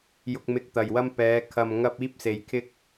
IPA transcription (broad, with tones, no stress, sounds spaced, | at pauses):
j ʊ˨ k̚ m ɪ˨ k̚ t̪ ɐ˨˩ j w ɐ˧ m p ɛː˨˧ kʰ ɐ˨ m ŋ ɐ˧ p̚ iː˥ p̚ s e˧ j kʰ ɪ˥ k̚